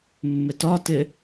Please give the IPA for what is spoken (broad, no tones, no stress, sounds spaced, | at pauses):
mː ɪ t ɒ t ɪ